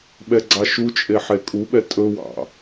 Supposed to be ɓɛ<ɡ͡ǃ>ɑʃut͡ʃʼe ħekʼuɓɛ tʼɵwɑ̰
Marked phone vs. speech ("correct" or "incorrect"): incorrect